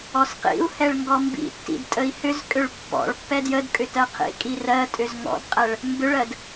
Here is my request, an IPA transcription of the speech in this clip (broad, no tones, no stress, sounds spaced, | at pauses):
ɔ s q ḭ u̯ h ɛ ɭ ŋ ɡ ɔ m b ḭ tː ḭ d tʼ ə i̯ h ʏ z kʼ ʏ ɭ pː ɔ̰ ɭ pː ɛ d j ə d kʼ ʏ t ɜ qʰ ḭ kʼ i r ɜ tʼ ʏ z ŋ ɔ̰ d qʼ ɛ ɭ | m b ʏ ɭ ɜ d